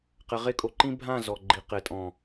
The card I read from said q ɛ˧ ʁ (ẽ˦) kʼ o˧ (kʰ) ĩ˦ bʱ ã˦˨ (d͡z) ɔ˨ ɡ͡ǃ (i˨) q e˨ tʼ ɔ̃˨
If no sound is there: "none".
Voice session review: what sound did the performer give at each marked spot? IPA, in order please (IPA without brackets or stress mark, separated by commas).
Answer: e˦, ǃ, z, i˨